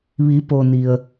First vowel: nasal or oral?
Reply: oral